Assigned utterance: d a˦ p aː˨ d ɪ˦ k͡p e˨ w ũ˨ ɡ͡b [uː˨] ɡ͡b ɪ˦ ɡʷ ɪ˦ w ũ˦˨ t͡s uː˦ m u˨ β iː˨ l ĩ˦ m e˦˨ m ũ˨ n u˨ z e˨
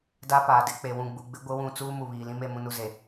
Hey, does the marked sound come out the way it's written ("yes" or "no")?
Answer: no